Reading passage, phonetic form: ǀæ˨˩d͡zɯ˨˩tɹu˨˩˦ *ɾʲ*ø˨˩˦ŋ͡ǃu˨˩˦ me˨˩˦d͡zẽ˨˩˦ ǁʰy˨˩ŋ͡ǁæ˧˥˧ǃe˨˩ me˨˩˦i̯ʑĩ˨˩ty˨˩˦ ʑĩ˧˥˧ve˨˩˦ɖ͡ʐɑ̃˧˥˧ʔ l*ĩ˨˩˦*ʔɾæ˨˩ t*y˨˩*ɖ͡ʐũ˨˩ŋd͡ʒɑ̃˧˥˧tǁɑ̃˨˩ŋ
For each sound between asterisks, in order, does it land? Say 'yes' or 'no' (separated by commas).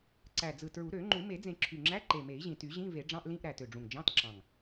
no, no, no